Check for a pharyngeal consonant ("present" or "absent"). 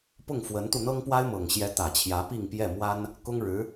absent